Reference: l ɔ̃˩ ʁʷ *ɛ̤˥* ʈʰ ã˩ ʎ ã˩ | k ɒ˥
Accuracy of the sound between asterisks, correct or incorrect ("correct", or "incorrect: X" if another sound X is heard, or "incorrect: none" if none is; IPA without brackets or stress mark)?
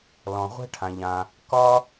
correct